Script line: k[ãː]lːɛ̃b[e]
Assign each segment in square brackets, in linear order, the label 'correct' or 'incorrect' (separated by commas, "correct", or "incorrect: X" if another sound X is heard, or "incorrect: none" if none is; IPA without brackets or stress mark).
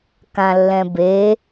incorrect: ã, correct